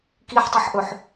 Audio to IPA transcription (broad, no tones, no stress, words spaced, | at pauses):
kiħtˤiħʔɵħ